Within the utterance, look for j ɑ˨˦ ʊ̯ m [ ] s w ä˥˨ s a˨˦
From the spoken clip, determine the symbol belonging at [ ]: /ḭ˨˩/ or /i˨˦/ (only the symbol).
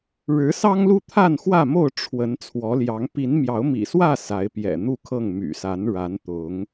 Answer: ḭ˨˩